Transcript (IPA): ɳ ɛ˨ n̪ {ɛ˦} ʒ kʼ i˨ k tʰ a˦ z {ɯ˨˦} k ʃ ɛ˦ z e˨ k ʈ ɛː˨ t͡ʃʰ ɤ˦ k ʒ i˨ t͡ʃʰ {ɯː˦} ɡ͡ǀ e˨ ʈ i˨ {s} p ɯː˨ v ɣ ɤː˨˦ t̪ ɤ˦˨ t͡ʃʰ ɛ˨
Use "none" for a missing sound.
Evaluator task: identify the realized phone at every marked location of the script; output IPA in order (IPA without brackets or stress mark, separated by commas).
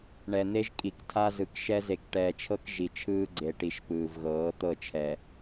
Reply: e˦, ɯ˨˦, ɯː˦, ʃ